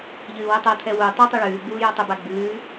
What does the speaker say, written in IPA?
ʎ ɨː w ɛ tˤ ɤ tʰ ɛ w u tˤ ə tˤ ʉ ɭ ʉː ɡ͡b uː j o tˤ ə b a ɡ͡b ʉː

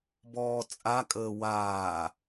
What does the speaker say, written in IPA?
b ɔː t͡sʼ a kʼ əː w aː

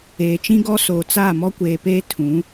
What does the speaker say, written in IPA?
eː˨ t͡ʃ ĩ˦ ɡ ɔ˦ s oː˨ t͡s a˦˨ m ɔ˦ kʷ eː˨ p eː˦ tʰ ũ˨˦

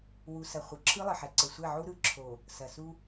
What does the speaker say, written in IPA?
w u˨ s ɐ˨ χʷ ɤ˨ ǁʰ ɯ˦ lˠ ɘ˨ ħ ɛ˨ ǀ ɘ˨ sʷ ɛ˦˨ ʕ u˦ ɾ ɯ˨ ǁʰ o˨ | s ɐ˨ s u˦

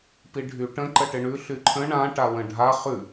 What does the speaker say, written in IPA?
p i ɖʱ y ʈ ə̃ ǃ ə ʈ ɪ ɳ ʉ ɬ y ǃʰ ə̃ ɳ ã ʈ a w ə̃ ɖʱ a χ ʉ

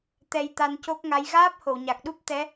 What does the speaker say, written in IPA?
t̪ ɛ˧ j t̪ a˧ n c o˦˥ k̚ ŋ a˧˥ j ɣ aː˦˥ p̚ h o˨˩˨ w ɲ a˨˩ k̚ ɗ u˦˥ p̚ t̪ ɛ˧˥

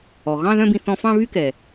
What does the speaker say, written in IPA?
ɔ˩ ɣ ɑ̃˥˧ ð œ̃˥˧ b ĩ˧ θ ɔ̃˧ f ɑ̃˥˧ β y˥˧ k ɛ˩

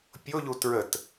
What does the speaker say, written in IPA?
pʲ o ʎ u t ɹ ə t

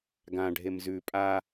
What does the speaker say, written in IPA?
ɡ ã ɖʱ e m z ʉ pʼ a

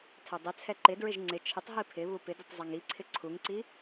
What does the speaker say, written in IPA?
tʰ ɛ dˤ ɪ t͡sʰ ɛ ǃ ɪ d ɹ ɪ ʒ ŋ͡ǀ ɪ t͡ʃʰ ɪ tˤ ɦ i pʰ ɪ β u p ɪ d ɪ tˤ zˤ ɛ ŋ i ǀʰ ɪ ǀʰ u ŋ ǀ i

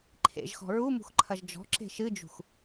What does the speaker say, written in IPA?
ǃʰ ḛ ʒ x ɔ̤ ɹ u m ṳ x ǃʰ ɐ ʒ d͡ʒ ɔ̤ ǁ e̤ ʃ ɨ d͡ʒ ṳ x

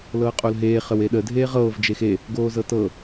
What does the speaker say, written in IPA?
l ɤː qʼ o l ɦ eː χ ə w e ɗ ə dʱ eː ʁ ɤː v d͡ʒ e x e | ɡ oː z ɤ t ɤ

